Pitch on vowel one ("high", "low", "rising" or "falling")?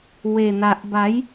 low